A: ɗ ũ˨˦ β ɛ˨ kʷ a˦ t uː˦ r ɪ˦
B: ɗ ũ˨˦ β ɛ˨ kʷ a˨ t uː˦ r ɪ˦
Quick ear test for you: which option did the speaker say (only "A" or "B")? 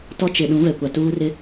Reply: B